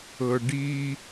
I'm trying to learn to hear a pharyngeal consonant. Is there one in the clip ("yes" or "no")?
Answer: no